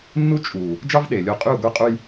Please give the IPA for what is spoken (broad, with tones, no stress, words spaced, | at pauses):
nːu˦ t͡ʃʼu˨ | d͡ʒɑ˦v ɗe˨lʲo˦ qʼy˦˨u̯ɡʷe˦qʼu˦j